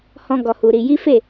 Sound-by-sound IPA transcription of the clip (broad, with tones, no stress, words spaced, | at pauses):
hɔ̃˦ɡɔ˧hu˧ɾi˧ ji˦fe˦˨